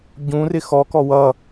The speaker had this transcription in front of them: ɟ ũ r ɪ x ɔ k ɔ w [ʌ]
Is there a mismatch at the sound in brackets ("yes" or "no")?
no